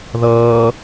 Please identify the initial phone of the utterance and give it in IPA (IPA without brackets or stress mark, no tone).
ð